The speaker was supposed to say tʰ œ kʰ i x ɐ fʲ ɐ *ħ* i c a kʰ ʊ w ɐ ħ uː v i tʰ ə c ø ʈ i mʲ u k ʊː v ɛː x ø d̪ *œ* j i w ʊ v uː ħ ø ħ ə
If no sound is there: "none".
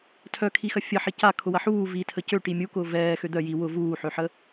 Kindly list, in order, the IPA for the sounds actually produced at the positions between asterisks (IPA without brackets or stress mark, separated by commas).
ħ, œ